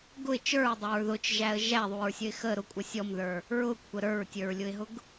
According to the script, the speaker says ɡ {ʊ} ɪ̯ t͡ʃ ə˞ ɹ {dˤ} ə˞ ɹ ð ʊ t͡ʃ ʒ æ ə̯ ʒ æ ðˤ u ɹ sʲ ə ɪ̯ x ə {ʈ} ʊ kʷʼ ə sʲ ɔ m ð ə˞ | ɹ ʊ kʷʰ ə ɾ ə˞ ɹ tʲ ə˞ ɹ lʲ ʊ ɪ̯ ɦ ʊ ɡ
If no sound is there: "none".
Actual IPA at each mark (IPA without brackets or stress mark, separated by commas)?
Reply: ʊ, dˤ, ɾ